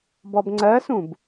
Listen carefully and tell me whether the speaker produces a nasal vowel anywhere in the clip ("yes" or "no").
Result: yes